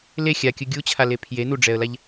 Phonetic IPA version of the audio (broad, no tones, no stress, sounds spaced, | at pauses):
l e xʲ a kʲ ɯ ɡʲ u t͡ɕʰ a l e pʰ j e n u ɖ͡ʐ ɛ ə̯ l a ʎ